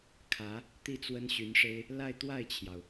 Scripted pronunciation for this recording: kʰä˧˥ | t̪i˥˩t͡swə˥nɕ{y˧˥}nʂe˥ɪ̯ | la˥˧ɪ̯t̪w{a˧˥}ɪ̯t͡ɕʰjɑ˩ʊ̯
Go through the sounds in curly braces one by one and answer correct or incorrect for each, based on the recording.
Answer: correct, incorrect: a˥˩

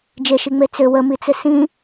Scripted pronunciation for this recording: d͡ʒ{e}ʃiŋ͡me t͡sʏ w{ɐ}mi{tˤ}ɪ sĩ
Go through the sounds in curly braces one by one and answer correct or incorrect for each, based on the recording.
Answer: correct, incorrect: ə, incorrect: t͡s

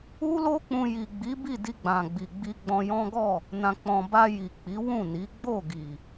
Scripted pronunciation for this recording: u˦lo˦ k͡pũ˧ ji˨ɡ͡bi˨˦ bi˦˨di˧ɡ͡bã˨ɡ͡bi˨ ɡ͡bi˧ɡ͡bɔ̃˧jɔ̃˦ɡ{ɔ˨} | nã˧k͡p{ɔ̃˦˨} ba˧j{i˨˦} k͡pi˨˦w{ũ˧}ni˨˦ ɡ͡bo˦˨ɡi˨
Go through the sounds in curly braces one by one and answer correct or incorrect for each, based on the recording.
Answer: incorrect: ɔ˦˨, incorrect: ɔ̃˧, incorrect: i˨, incorrect: ũ˦˨

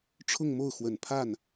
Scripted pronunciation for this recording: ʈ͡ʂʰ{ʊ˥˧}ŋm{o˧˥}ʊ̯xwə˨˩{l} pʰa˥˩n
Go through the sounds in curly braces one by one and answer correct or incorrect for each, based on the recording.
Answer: correct, incorrect: o˥˩, incorrect: n

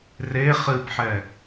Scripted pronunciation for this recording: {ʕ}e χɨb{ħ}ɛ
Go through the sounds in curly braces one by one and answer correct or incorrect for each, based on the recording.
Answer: incorrect: r, correct

